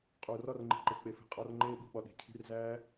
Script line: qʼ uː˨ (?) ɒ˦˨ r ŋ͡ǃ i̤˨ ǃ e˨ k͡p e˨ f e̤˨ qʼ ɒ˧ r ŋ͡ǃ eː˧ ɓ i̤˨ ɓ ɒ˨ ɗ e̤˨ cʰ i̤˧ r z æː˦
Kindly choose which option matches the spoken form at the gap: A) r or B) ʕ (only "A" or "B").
A